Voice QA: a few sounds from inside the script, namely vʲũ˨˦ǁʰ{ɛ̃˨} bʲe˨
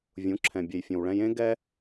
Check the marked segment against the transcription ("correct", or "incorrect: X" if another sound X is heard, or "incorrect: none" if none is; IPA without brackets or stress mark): correct